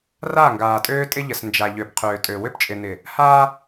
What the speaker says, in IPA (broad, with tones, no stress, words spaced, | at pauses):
ra˦˨ŋɡaː˨tʼøː˦tʼɪ˦ ʎə˨snd͡ʒa˨ʎø˨p qʰøː˨tʼø˨ wʏ˦pt͡ʃʼɪ˨nɪ˨ | ha˦